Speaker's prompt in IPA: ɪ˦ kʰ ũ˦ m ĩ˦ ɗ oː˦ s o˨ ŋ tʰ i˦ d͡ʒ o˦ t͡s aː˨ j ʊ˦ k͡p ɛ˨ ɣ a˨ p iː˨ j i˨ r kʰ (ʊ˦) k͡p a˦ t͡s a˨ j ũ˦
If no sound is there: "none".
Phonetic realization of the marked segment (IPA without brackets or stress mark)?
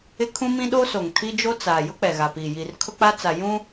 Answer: ʊ˦